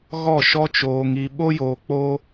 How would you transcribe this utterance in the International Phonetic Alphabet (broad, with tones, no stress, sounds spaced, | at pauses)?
ɣ ɔ˦˨ ʃ ɔ˦ t͡ʃ oː˧ ŋ i˧ ɓ o˦ j oː˧ k͡p o˦